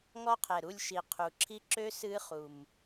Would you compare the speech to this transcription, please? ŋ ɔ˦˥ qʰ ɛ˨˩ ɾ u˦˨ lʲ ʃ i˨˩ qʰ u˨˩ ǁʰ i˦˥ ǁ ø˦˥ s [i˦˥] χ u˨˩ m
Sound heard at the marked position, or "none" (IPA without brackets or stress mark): ɨ˦˥